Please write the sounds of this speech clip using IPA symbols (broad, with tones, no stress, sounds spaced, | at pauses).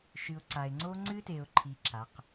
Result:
ʃ ɨ˨ ʊ̯ ǀ a˨ ɪ̯ ŋ͡ǀ o˦ ŋ͡ǀ ɨ˦ t e˨ ʊ̯ ǃʰ i˨ ǁ a˨˦ q